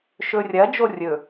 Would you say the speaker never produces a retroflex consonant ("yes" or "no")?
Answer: yes